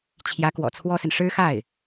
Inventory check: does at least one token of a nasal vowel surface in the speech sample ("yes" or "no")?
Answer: no